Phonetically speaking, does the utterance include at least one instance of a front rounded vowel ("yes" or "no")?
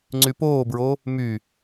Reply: yes